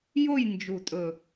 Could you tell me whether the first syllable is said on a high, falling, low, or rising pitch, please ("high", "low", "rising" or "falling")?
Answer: falling